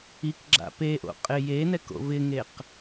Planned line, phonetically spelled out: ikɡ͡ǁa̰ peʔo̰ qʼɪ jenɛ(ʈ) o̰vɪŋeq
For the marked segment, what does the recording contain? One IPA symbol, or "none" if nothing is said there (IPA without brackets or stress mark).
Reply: k